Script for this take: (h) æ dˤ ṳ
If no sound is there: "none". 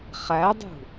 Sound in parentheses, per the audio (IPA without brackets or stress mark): χ